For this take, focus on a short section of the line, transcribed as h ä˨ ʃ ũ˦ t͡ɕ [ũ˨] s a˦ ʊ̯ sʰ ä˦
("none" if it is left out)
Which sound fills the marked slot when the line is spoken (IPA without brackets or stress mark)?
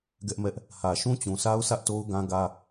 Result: ũ˨